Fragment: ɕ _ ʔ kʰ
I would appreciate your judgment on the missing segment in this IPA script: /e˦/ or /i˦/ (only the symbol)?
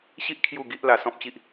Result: i˦